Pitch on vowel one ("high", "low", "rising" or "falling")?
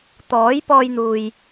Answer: rising